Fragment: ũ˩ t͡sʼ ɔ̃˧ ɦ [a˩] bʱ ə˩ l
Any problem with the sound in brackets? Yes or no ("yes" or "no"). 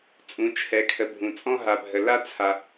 no